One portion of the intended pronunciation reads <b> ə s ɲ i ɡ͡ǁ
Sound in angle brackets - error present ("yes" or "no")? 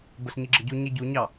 no